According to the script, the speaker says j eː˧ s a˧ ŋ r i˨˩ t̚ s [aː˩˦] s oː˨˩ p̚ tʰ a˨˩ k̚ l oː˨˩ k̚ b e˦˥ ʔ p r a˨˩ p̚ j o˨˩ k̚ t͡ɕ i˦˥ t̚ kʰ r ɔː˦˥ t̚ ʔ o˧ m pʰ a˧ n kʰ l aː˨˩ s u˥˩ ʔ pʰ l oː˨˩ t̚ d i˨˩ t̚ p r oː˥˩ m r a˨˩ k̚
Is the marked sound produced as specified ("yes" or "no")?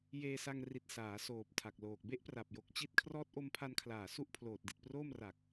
yes